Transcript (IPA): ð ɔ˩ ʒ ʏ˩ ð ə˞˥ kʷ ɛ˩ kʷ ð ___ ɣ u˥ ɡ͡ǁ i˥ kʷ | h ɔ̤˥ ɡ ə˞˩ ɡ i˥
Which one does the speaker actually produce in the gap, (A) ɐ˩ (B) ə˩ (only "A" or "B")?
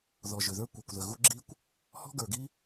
B